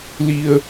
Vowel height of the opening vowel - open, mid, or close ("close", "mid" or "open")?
close